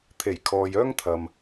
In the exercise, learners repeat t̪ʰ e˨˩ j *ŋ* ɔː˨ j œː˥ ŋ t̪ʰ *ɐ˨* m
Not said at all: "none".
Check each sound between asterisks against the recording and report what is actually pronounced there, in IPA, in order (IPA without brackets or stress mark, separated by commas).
kʰ, ɐ˨